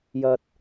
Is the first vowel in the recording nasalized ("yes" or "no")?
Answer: no